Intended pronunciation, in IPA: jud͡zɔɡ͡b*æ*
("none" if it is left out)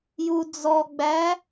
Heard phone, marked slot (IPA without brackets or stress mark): æ